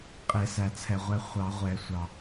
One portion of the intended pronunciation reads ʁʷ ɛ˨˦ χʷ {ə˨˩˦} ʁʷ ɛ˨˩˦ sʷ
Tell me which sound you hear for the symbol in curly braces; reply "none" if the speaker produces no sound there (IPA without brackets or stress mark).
ɑ˨˩˦